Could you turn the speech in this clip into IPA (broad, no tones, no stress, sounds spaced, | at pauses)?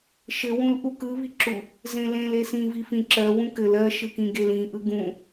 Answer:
ʃ ɘ w ũ l ʔ u k ɯ β i ǁ u | z ẽ l ẽ l e s ĩ v i f ĩ ǁ ɜ w ũ k ɘ l ɜ ʃ ɯ k ĩ ɡ e l ĩ ʔ ɯ ɡ ũ